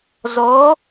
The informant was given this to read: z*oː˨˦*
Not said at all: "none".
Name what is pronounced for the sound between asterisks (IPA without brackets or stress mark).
oː˨˦